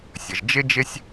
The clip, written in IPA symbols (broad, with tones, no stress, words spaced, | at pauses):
sʲə˩ʒd͡ʒɪ˥ d͡ʒɪ˥sʲ